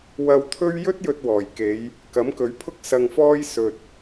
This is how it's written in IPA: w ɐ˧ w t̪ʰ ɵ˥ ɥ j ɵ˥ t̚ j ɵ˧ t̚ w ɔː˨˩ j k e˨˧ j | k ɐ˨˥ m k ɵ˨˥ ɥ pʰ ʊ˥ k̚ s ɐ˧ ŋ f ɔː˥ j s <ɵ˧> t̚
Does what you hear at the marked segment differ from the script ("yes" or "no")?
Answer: no